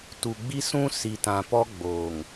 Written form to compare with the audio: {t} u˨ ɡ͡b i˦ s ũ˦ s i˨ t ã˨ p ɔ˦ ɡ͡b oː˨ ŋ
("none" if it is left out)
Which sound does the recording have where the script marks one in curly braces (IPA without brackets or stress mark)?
t